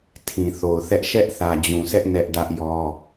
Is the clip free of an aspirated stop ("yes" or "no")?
no